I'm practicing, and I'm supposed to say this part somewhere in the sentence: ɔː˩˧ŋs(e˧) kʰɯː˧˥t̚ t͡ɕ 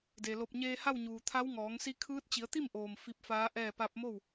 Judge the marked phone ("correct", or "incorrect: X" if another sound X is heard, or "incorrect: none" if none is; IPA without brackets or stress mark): incorrect: i˧